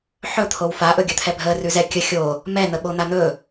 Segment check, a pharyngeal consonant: present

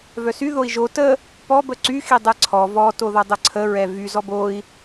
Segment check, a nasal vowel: absent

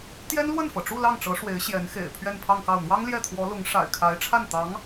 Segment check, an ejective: absent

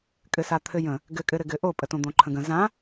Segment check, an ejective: present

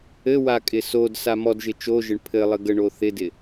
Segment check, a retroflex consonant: present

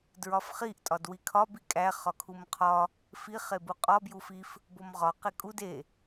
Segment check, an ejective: present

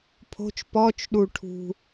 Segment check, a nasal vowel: absent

